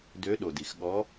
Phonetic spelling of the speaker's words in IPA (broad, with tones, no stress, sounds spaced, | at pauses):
d ø˨˦ ɗ o˩ d i˩ x ɠ ɔ˨˦